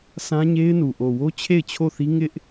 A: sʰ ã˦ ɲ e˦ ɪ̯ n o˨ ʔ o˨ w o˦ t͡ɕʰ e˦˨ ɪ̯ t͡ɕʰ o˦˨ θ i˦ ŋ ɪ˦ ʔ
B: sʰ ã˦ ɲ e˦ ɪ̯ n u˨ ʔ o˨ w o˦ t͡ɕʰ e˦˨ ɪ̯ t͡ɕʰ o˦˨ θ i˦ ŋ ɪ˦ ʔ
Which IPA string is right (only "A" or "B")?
B